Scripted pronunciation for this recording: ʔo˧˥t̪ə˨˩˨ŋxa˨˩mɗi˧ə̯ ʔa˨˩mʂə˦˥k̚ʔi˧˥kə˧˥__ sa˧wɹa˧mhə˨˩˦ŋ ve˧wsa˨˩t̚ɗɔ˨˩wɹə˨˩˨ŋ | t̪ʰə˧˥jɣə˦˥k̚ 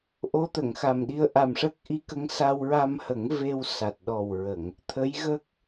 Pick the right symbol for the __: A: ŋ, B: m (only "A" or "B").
A